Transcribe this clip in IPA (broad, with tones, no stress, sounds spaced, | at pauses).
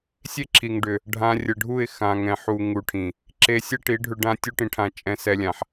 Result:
sʲ e˦ ǁʰ i˨ ŋ ɖ ʏ˨ | ɖʱ ã˧ rʲ ə˨ ɖʱ u˦˨ ɪ̯ x ã˨ ŋ ɛ̃˨ ħ u˧ ŋ u˧ ʈʰ ĩ˨ | ǁ e˧ sʲ ɛ˦ ʈ i˨˦ ɖʱ ʏ˧ ɖ ã˦ tʲ u˦ ʈ ĩ˧ ʈʰ ã˧ t͡ʃʼ ɛ̃˧ s ɛ˧ lʲ ã˨ ħ